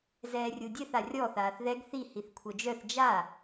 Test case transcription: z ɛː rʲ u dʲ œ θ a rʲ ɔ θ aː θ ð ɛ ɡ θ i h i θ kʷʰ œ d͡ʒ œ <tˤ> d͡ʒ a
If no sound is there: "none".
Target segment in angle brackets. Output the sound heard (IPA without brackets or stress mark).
θ